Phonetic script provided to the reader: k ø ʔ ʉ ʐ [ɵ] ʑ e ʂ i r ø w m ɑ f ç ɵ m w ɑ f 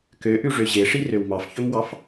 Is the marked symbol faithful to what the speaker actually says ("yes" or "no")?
no